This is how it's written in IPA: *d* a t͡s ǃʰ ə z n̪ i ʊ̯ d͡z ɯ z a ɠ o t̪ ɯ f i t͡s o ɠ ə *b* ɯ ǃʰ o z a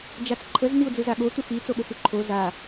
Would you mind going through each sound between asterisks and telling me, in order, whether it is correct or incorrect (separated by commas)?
incorrect, incorrect